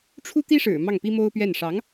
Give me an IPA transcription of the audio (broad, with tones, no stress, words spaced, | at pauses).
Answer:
ʈ͡ʂʰu˥t̪i˥ʂɻ̩˨˩ mɑ˥˩ŋpi˥mo˥ʊ̯pɥɛ˥˩n ʂɑ˧˥ŋ